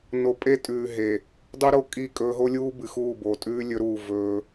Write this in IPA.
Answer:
n o˨ pʼ e˦ tʼ ʉː˨ ɦ e˨ | dˤ u˦ ɾ o˦ kʼ i˦˨ kʼ ɵː˦ ɦ o˦ lʲ uː˦ b ɨ˨ x uː˦˨ b o˨ tʼ ʉː˦ lʲ ɵ˦ ɾ uː˦˨ v ɵː˦

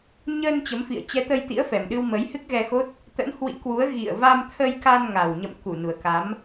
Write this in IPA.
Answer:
ɲ ə˧ n t͡ɕ ə˨˦ m f ḭ˧˨ ə̯ t͡ɕ ɛ˨˦ t̪ ə˧ j t̪ ḭ˧˥ ə̯ f ɛ˨˩ m ɗ ɨ˧ w m ə˨˦ j h ɨ˦˥ k̚ ɣ ɛ˧ x o˦˥ t̚ | t̪ ə̰˧˥ n h w ḭ˧˥ k w u˨˦ ə̯ ɣ ḭ˧˨ ə̯ v a˧ m t̪ʰ ə˧ j k a˧ n ŋ a˨˩ w ɲ ə̰˧˨ m k u˧˩ n u˨˩ ə̯ k a˨˦ m

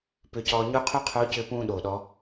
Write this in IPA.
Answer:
p ʏ˧ c ɔː˧ ɲ u˥ qʰ o˥ qʰ o˧˥ c ʏː˧ p ũː˧ ɗ o˩ ɗ ɔ˩˧

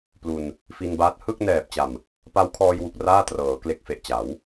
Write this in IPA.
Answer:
p l u˧ n | f i˧ n b aː˦˥ t̚ h ɯ˥˩ k̚ n ɛː˨˩ p̚ t͡ɕ a˨˩ m | p a˦˥ w kʰ ɔː˧ j w u˨˩ k̚ r aː˥˩ t r ɤː˩˦ k l e˨˩ k̚ f e˨˩ ʔ t͡ɕ a˩˦ w

